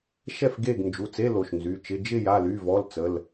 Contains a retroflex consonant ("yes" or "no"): no